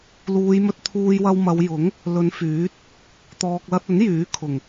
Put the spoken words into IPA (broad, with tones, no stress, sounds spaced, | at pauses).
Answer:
l uː˨˧ j m ɵ˧ t̚ t̪ʰ uː˧ j w ɐ˧ w m ɐ˨˧ w j ʊ˨˥ ŋ | l ɵ˨˧ n f yː˨˥ t̚ | t̪ ɔː˨ k̚ l ɐ˧ t̚ ɵ˨˥ n j yː˨˥ kʰ ʊ˨˩ ŋ